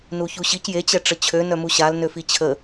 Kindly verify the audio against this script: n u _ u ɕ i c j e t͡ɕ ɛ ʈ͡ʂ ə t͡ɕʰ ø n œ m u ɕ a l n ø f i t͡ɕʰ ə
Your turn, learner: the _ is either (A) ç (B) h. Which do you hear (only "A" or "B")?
A